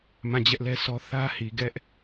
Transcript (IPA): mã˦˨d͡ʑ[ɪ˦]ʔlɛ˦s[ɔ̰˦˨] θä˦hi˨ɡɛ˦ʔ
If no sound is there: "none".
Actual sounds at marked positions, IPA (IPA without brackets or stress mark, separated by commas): ɛ˦, ɔ˦